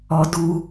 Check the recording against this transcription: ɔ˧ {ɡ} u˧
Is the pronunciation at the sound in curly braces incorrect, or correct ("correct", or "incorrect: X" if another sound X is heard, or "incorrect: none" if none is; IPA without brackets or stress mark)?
incorrect: d